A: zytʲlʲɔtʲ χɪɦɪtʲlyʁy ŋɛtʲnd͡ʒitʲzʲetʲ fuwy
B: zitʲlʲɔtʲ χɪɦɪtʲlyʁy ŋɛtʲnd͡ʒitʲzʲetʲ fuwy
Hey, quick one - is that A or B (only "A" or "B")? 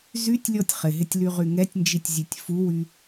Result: A